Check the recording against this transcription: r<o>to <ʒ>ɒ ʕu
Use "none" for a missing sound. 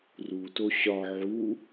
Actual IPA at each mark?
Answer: u, ɕ

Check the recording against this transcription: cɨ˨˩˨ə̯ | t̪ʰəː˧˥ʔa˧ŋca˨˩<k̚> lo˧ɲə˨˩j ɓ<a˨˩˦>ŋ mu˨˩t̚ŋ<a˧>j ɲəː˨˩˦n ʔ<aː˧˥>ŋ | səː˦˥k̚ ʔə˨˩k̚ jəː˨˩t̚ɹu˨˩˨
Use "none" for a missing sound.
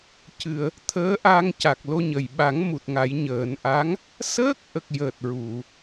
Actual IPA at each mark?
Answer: k̚, a˨˩˦, a˨˩˦, a˧˥

